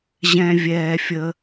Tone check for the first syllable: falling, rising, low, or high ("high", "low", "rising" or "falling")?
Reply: high